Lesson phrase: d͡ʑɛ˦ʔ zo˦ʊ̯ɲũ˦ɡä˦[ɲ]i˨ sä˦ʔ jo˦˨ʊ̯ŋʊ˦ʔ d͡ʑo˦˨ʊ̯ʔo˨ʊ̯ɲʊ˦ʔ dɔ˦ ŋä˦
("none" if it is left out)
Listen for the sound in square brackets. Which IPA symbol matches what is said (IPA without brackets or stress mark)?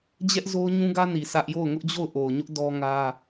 n